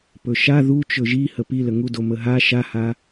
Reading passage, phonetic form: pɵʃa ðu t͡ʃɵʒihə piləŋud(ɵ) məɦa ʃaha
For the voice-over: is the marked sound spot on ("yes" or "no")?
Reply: no